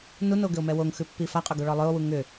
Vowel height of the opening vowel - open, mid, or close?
close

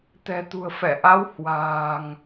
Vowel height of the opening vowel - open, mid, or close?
mid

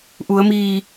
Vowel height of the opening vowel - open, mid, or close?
close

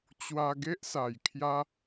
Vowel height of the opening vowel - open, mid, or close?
open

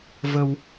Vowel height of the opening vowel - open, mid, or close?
mid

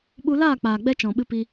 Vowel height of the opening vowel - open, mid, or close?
close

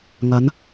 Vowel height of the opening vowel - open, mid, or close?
open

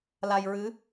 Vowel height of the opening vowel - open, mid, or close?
open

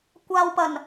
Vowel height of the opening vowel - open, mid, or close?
open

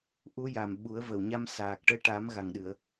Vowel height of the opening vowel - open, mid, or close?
close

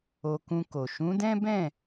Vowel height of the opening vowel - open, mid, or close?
mid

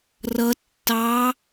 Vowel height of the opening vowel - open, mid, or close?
mid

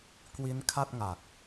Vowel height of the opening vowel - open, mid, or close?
close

